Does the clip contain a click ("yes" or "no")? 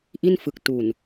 no